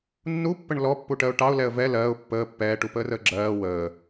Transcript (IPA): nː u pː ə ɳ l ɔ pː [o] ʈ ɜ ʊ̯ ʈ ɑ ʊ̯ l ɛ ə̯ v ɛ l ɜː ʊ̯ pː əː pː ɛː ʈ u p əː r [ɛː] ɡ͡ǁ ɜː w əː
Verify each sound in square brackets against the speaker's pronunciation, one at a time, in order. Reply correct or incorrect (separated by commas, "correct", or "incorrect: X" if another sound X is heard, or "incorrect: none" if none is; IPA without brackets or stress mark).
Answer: incorrect: u, incorrect: əː